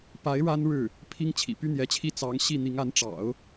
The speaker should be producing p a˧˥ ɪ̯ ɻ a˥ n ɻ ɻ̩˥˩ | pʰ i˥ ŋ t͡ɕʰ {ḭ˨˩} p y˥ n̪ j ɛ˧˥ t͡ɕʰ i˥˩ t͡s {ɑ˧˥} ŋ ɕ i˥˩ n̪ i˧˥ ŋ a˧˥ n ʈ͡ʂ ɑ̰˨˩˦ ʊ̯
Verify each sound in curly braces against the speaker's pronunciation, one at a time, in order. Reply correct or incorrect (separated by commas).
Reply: correct, correct